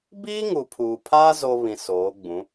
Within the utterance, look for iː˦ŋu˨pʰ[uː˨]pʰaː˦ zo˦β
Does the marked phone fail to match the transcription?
no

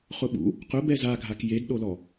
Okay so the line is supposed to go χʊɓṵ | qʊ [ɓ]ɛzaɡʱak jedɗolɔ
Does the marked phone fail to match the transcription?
yes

